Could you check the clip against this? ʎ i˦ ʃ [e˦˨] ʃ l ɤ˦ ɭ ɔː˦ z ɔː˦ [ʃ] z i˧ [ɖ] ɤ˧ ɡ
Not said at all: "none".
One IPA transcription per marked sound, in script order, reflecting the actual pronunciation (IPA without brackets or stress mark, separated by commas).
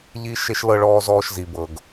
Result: e˦, ʃ, b